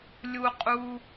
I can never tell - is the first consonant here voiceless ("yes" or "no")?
no